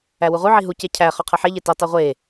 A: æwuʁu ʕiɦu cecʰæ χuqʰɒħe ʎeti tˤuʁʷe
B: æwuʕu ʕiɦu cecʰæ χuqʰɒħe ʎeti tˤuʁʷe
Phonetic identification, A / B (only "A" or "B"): A